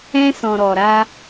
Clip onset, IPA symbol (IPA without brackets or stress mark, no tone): ɛ̃